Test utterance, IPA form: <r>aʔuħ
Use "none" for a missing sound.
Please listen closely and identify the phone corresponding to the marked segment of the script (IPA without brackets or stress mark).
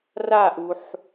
r